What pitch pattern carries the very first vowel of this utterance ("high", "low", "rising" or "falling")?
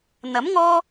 rising